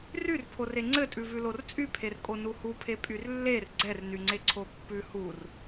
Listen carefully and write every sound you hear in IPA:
ryrpʰore ŋ͡ǀɘtʼʉvʉlor t͡sʼypʰer kʼonuhupʰe pʼyrlːer ɡ͡ǀɛrnyŋ͡ǀe ǀʰopːʉ hur

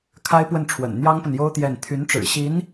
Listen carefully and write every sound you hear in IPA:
kʰa˥ɪ̯pwə˥˩nʈ͡ʂʰwə̰˨˩n n̪jɑ˥ŋpə˨njo˥ʊ̯ t̪jɛ˥˩n t̪ʰy˧˥nʈ͡ʂɻ̩˨˩ ɕi˧˥n

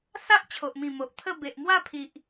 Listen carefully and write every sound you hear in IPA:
sa˦ʔ t͡ɕʰo˨ʔmĩ˨˩ mo˨ʔt̪ʰə˥˧ be˨ʔmwa˥˧pʰi˨ʔ

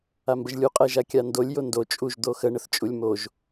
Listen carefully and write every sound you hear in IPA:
ambəʒlʲu qʼɛʒakʲandolʲ jondo t͡ʃʼuʒ d̪oxə ɳəθt͡ʃʼulʲmoʒ

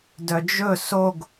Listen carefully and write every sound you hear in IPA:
dœd͡ʒɵ soɡ

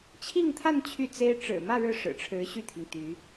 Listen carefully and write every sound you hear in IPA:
t͡ɕʰi˥˧ŋt̪ʰa˥˧n t͡ɕʰy˥˩ t͡se˥ɪ̯ ʈ͡ʂɻ̩˨˩mä˥˧ ɻɻ̩˥˩ʂɻ̩˨˩ʈ͡ʂʰɻ̩˧˥ ɕy˥˩t̪ʰi˩ŋ t̪y˧˥

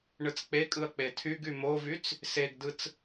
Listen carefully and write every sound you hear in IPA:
ɳɯt͡sk͡pekʼɯɐ̯ k͡petʰyɡy movyt͡s | seɡdɯt͡s

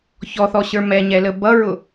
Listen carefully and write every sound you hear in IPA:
çɔθɔɕə˞ mɛɲɛlə bʌɹʊ

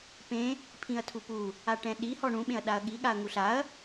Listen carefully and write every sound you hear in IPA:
pẽ | pʰĩɐ̯tʰupu | aʈɛ̃ɗi hɔɳũɓẽɐ̯ ɗaɐ̯ɠi ɠaɐ̯ŋuɬaɐ̯

